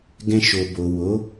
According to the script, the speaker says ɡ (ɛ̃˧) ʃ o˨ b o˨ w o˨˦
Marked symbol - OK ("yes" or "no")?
yes